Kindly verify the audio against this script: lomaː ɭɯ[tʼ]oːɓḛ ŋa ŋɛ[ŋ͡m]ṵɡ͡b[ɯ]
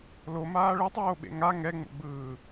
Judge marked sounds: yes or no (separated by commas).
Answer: no, yes, no